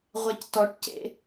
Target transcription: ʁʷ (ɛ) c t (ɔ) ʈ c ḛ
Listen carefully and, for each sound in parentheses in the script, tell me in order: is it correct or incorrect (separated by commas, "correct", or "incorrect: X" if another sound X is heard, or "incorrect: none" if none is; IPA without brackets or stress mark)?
correct, correct